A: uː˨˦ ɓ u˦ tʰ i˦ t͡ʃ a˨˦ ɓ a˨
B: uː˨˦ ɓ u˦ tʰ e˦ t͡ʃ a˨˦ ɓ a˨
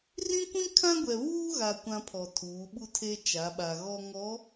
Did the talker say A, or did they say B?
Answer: B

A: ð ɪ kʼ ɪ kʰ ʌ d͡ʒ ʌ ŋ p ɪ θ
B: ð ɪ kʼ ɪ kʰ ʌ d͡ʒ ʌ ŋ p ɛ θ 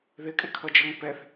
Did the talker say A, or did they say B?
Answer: B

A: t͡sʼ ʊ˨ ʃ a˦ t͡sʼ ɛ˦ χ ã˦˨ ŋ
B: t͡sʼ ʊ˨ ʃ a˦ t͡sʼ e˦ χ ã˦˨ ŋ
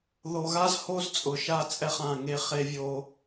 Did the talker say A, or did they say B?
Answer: A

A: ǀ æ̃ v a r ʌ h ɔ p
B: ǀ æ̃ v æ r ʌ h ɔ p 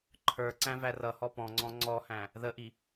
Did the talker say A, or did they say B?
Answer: B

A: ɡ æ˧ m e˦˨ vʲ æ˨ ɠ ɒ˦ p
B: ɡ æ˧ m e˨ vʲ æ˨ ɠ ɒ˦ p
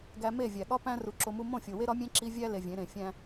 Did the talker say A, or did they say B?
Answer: A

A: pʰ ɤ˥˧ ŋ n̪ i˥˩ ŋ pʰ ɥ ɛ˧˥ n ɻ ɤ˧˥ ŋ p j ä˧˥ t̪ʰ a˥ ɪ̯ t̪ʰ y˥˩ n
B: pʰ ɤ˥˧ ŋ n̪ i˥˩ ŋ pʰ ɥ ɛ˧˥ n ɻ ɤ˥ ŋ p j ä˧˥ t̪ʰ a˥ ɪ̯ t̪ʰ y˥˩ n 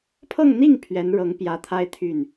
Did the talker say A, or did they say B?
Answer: A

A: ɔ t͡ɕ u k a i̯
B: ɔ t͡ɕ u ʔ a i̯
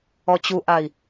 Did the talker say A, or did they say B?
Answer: B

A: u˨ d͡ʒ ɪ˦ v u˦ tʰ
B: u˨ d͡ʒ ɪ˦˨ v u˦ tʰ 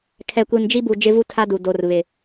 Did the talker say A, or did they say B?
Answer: A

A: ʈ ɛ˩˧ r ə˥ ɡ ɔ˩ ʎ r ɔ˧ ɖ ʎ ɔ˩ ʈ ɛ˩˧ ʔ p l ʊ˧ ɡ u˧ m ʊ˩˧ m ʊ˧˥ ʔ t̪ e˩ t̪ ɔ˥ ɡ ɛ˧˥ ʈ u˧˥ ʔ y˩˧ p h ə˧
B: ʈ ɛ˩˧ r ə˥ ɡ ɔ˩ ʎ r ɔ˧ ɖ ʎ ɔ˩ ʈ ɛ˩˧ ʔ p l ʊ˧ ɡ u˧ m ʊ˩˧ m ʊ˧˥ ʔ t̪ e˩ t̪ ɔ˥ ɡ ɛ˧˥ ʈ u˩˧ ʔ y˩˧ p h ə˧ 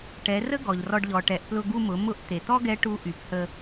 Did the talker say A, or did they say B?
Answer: A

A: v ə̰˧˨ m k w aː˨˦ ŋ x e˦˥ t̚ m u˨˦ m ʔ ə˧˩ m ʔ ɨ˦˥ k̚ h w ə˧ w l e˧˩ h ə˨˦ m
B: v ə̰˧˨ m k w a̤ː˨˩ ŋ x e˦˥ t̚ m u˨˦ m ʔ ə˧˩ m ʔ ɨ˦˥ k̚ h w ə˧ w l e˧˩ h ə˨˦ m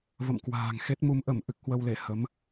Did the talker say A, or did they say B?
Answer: B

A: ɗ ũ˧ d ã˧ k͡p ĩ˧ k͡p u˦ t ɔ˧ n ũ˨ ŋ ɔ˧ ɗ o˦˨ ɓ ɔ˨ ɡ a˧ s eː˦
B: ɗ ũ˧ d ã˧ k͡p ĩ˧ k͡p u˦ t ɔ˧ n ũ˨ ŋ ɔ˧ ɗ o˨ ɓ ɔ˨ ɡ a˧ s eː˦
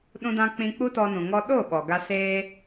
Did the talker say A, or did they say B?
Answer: A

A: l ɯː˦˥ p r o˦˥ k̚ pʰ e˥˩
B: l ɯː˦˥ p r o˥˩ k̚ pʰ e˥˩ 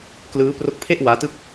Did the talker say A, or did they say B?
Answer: A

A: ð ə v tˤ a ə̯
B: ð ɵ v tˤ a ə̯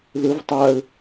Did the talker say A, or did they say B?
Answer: A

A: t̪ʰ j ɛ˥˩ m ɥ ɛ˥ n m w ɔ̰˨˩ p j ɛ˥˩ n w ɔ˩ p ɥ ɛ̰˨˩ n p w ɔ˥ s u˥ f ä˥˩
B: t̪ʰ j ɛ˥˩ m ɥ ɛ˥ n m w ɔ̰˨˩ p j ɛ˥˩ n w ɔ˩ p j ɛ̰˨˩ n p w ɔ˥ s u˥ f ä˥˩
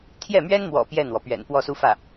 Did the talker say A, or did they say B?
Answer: A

